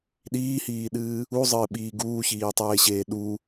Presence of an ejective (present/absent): absent